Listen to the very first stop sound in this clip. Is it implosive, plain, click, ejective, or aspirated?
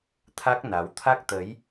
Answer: aspirated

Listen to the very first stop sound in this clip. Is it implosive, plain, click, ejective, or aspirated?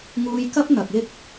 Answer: plain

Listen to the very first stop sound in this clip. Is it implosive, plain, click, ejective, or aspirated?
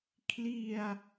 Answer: aspirated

